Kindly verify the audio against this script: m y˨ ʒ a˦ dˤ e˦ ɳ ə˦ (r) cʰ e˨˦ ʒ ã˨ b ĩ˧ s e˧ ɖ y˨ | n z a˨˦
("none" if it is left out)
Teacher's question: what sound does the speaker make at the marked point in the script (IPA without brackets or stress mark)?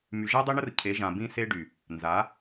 r